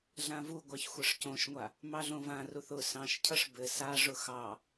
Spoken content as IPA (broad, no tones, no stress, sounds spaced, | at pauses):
ɮ ã v u ɡʷ ɑ ç xʷ ɘ ʂ c õ ʃ ŋʷ a | m ɑ ɮ õ v ã r u θ ʊ s ɑ̃ ʃ cʰ ʌ ʂ b ɘ s a ʐ ʊ x ɑ